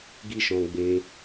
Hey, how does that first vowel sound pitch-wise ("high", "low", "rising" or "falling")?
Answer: high